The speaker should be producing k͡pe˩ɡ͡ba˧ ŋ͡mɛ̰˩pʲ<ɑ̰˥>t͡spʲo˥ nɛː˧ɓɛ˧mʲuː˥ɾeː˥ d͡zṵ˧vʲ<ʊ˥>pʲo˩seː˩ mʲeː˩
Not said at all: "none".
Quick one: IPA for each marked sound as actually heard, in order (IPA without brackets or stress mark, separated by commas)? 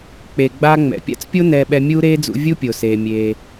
a̰˥, u˥